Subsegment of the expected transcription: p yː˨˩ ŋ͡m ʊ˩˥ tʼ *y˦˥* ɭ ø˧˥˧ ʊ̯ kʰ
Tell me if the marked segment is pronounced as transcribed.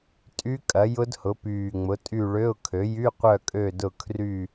no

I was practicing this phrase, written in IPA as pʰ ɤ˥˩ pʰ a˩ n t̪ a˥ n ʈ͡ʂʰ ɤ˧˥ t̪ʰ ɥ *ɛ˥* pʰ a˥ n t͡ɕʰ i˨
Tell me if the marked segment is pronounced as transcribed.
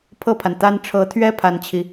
yes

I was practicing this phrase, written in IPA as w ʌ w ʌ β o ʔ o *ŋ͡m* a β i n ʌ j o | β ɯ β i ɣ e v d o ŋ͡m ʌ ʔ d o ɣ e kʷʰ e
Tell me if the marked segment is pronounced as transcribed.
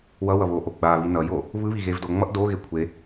no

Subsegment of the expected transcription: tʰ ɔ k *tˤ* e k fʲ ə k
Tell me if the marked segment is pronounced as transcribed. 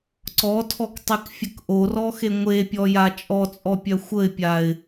yes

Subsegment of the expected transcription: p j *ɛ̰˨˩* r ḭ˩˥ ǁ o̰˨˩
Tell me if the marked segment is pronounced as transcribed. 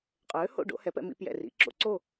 yes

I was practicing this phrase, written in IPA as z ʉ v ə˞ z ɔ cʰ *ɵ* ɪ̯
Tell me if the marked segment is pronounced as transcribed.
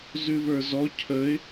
no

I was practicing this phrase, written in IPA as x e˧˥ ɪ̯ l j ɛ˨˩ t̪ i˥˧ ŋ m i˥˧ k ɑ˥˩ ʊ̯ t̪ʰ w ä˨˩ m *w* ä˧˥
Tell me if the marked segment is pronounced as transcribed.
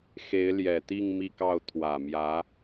no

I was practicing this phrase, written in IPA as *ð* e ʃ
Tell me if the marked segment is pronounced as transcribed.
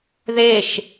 yes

